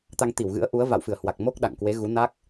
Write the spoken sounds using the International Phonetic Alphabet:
t̪ a˧ ŋ t̪ i˧˩ w ɣ ɨ̰˧˥ ə̯ ʔ u˨˦ ə̯ v a̰˧˨ w f ɨ˧˩ ə̯ h w a˨˩ k̚ m o˦˥ k̚ ɗ a̰˧˨ ŋ k w e˨˦ ɣ u˨˦ n a˦˥ k̚

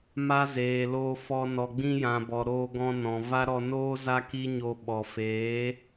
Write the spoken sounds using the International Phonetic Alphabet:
m a˦ z eː˨ l oː˧ f ɔ˧ n ɔ˨ ɡ͡b ĩ˧ j ã˨ b ɔ˨ ɾ oː˧ ɡ ɔ̃˧ n ɔ̃˨ v a˦ ɾ ɔ˧ n oː˦ z a˦ k iː˦ ɲ oː˧ ɓ ɔ˨ f eː˨˦

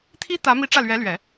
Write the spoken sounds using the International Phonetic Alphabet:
t̪ʰ i˥ t̪ ä˧˥ m i˧˥ ʈ͡ʂ ä˥˩ l ɥ ɛ˧˥ l ɥ ɛ˨˩˦

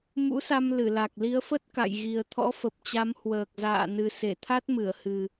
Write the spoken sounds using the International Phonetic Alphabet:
m ṵ˧˥ s a˧ m l ɨ˧˩ l a˨˩ k̚ l i˨˦ ə̯ f ə˦˥ t̚ k a̰˧˨ j ɣ i˨˩ ə̯ t̪ʰ ɔ̰˧˥ f ə˨˩ p̚ t͡ɕ a˨˦ m h w əː˨˩ k̚ z a̰ː˧˨ n ɨ˨˩ s e˧˩ t̪ʰ a˦˥ t̚ m ɨ˧˩ ə̯ h ɨ˨˩

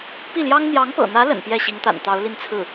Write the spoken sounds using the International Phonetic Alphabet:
p i˥˩ l j ɑ˥ ŋ n̪ j ɑ˧˥ ŋ p ɤ̰˨˩ n̪ ä˧˥ l ə̰˨˩ n p j ɛ˥˩ ɕ i˧˥ ŋ t̪ a̰˨˩ n t̪ ɑ˧˥ ʊ̯ l i˥˧ n t͡sʰ ɹ̩˥˩

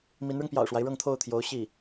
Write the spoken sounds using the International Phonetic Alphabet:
m i˧˥ n ɻ ʊ˧ ŋ p j ɑ̰˨˩ ʊ̯ ʂ w a˦ ɪ̯ ɻ ɤ˥˧ ŋ t̪ʰ o˥˩ ʊ̯ t̪ʰ j o˧˥ ʊ̯ ɕ i˥˩

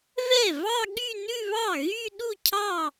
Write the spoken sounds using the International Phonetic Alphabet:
v ɛ˥˩ v ɑ˥˧ ɠ y˥˧ n ʉ˥˧ β ɑ˥˩ ɣ y˥˧ ɗ u˥˩ cʰ ɑ˥˩

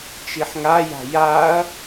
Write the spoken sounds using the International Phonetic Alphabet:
t͡ʃ i ħ ŋ a j a̤ j a ɐ̯

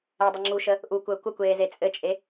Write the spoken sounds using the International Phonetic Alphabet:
ɛ dˤ ɘ ŋ͡ǁ u ʃ ə | ʔ u kʷ əː kʷ ə kʷ eː z e t͡sʼ ɘ t͡ʃʼ e

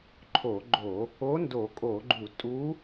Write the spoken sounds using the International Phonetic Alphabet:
ǃʰ o˧˩˧ ɡ͡ǃ o˧˩˧ | o˧˥ n d o˧˩˧ kʼ o˧˩˧ ɡ͡ǃ u˧˩˧ tʼ u˧˥

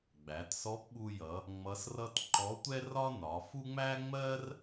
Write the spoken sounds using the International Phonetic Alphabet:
ɡ͡b æ˩˧ t s ɔ˧˥ p ɓ u˧ j ʌ˩˧ | ŋ͡m ʌ˧˥ s r ʌ˥ t ǃ ɔ˧˥ tʷ ɛ˥ r ɒ˥ n ɒ˩˧ f u˥ ŋ͡m æ˥ ŋ͡m ɜ˥ r

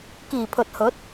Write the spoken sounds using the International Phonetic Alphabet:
k iː˨˩ pʰ ɵ˨ t̚ h ɵ˨˥ t̚

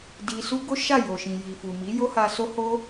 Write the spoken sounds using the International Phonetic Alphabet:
d i˧ s u˦ ɡ o˦ ʃ a˦˨ j o˨ ʃ ĩ˨ j i˨ f u˨ m i˨˦ j o˦ h a˧ s o˦ h o˦

